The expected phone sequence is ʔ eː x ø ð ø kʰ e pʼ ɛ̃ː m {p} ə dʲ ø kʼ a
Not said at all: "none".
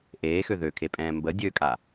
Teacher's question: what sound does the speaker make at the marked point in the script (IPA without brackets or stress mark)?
b